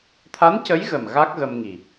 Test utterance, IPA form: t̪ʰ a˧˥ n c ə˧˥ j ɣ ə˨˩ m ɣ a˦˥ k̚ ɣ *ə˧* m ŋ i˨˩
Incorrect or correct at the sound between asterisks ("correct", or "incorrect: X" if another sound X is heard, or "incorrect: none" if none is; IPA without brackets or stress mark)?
correct